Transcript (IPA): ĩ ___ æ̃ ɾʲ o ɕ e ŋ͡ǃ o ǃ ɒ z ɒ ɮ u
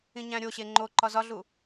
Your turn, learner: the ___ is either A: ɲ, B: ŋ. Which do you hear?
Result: A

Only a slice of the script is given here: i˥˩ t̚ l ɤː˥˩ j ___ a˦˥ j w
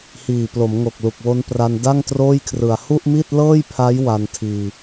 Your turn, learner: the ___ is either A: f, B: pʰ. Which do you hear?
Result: B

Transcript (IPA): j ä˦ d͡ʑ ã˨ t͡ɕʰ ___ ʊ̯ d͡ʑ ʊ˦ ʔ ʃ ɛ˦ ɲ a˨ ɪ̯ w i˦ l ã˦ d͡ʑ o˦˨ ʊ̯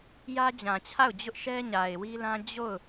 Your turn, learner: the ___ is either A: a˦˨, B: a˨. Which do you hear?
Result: A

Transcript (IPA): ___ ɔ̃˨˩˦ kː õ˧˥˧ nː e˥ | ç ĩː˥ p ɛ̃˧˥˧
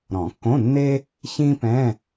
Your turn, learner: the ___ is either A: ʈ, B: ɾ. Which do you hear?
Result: B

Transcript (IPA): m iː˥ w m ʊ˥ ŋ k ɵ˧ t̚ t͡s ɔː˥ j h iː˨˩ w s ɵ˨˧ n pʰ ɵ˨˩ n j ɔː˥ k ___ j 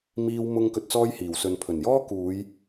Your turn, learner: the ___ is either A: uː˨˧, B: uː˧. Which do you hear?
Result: A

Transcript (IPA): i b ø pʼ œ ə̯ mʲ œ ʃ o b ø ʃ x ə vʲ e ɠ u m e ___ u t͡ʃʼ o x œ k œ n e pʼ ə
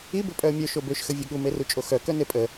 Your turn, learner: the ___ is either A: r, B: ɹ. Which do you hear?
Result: A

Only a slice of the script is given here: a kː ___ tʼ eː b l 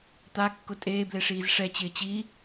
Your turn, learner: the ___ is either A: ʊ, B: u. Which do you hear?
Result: A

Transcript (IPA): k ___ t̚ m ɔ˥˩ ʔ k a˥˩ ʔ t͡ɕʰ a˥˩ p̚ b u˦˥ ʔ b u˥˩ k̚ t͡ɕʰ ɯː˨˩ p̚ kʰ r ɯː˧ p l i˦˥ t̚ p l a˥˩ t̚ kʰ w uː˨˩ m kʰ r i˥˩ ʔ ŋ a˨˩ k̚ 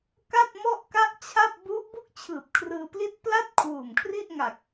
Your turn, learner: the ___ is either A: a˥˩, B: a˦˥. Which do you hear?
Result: A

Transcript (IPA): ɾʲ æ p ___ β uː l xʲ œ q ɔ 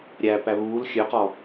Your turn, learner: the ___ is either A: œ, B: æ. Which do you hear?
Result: B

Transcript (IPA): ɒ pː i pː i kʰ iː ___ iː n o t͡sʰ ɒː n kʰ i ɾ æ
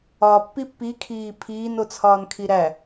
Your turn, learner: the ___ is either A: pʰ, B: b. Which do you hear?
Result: A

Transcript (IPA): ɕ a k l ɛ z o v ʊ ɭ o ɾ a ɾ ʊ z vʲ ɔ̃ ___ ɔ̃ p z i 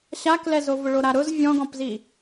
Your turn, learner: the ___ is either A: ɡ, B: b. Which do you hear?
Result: A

